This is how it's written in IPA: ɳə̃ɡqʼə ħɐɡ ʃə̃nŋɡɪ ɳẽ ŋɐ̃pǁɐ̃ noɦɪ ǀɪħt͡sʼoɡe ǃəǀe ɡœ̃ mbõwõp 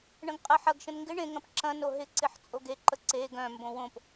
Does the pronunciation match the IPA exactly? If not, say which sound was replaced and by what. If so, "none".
none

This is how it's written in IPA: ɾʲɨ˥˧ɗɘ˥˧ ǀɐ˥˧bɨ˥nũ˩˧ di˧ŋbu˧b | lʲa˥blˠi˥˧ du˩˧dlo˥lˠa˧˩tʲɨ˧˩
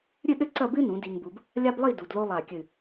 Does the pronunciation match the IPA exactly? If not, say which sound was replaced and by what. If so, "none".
tʲ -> kʲ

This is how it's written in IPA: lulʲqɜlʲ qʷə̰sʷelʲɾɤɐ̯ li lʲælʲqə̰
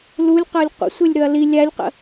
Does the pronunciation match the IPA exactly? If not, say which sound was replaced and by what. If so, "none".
ɤ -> ɵ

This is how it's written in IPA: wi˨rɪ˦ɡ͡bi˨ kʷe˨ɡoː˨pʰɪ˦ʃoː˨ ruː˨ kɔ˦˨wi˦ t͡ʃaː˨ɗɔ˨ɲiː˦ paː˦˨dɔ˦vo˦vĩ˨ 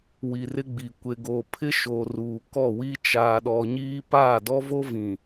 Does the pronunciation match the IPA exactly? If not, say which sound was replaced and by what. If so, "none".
none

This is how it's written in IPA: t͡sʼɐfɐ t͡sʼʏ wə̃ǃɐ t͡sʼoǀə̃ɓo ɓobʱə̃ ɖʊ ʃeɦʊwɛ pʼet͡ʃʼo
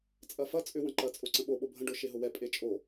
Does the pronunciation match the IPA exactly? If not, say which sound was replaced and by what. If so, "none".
none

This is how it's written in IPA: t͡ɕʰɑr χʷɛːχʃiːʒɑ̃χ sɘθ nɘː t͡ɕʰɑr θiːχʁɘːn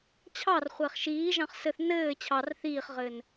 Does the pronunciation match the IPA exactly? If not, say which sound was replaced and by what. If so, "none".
none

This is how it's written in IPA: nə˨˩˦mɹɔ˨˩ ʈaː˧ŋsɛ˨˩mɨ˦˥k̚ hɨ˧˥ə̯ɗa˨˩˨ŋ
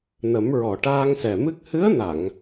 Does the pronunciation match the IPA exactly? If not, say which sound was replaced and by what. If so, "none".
ɗ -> n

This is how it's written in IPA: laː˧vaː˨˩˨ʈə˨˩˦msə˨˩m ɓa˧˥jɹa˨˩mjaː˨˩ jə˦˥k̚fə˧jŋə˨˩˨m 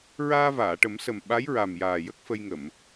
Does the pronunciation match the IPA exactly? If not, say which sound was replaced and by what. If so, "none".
l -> ɹ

